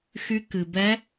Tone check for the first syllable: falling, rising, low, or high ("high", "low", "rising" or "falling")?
rising